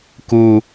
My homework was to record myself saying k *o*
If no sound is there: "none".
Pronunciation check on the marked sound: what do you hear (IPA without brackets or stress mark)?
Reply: u